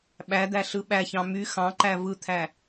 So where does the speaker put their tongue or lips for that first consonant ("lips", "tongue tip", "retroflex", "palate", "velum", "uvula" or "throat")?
lips